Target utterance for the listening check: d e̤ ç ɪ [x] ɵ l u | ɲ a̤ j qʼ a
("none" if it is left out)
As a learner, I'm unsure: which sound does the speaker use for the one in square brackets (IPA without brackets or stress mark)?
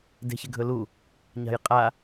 ɡʱ